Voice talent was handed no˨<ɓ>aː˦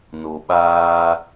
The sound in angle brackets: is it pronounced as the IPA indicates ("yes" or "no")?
yes